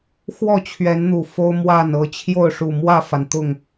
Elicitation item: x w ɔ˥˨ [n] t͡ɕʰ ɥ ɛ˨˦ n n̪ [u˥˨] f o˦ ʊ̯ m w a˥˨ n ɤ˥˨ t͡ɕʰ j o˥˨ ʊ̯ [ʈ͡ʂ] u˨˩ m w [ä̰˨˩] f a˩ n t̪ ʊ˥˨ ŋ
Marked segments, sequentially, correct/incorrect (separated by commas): incorrect, incorrect, incorrect, incorrect